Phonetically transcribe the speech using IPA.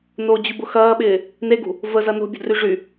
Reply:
n o d͡ʑ y b ʊ x ɐː ɓ ɪː | n e ɡ ṳ | v ə z ɐ n o̤ bʲ ə̤ d r y ʐ y

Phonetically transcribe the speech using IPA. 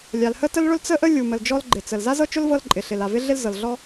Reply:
lʲ a˩ l h ə˥ t ə˥ l ɭ ʊ˥ l t͡s ə˥ ʔ ə˥ lʲ u˩ m ə˩ l d͡ʒ ɔ˥ l ɡ͡ǃ ɪ˩ t͡s ə˩ l z a˥ z ɤ˥ t͡ʃ ʊ˥ l v ɤ˥ l ǃʼ ɪ˩ ɬ ɪ˩ l a˩ v ɪ˥ ɮ ɪ˥ l z ɤ˩ l ɮ ɔ˥

